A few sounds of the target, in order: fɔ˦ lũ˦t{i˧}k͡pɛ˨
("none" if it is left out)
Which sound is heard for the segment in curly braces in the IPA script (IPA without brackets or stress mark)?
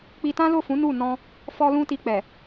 i˧